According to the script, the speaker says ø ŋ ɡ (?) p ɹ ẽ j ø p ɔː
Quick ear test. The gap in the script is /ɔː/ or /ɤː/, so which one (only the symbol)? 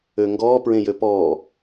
ɔː